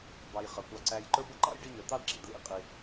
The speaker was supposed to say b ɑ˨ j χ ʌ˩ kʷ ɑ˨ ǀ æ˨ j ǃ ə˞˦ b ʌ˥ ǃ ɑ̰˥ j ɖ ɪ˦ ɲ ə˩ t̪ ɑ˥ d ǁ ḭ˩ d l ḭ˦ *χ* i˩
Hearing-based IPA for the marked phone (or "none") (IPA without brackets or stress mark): qʼ